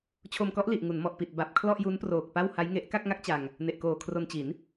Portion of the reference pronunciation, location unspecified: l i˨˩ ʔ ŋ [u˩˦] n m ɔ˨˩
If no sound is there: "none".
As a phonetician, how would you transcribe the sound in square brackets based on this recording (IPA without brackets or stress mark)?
u˩˦